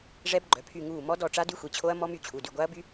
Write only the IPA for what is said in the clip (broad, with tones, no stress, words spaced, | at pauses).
ʐɛ˦˥bɡ͡ǃœ˩˧˩pʰy˦˨ŋuː˦˨ mɔ˦˥dɔ˦˨ʈ͡ʂa˦˥ dy˦˥xʷi˩˧˩t͡ɕʰo˦˥ɐ̯ mɔ˦˥my˦˨ t͡ɕʰu˩˧˩dy˦˨ ɡʷa˦˥ɐ̯by˦˥